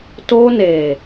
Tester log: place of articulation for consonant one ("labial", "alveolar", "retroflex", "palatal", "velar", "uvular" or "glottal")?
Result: alveolar